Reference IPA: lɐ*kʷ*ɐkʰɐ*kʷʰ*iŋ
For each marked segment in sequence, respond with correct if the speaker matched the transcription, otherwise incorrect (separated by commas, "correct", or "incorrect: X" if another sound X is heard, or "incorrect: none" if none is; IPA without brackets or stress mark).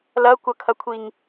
correct, correct